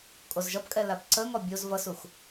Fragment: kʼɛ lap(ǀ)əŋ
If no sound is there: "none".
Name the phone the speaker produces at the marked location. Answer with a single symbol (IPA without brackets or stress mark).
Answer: ǀ